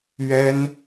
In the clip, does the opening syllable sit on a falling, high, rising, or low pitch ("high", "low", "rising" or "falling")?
high